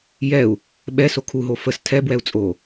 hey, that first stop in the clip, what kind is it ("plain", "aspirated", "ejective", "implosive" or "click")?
implosive